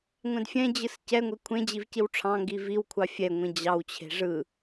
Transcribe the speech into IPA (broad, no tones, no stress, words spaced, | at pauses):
ŋʷɛ̃dfʲɛ̃d͡ʑɯs cɛŋʷe kʷʰẽd͡ʑiv ciwʈ͡ʂʰɑ̃ŋɡi viwkʷʰɑ fʲɛŋʷĩ d͡ʑɑwt͡ɕʰe̤ ʐɯ